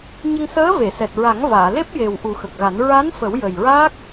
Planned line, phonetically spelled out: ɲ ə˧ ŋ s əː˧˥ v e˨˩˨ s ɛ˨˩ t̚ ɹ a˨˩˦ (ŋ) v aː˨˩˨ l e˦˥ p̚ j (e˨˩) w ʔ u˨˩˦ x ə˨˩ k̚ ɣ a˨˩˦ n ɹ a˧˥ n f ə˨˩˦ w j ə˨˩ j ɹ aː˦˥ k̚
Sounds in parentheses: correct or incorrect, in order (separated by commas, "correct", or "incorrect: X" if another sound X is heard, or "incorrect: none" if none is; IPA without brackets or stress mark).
correct, correct